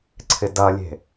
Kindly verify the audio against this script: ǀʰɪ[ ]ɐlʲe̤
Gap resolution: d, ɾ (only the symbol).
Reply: d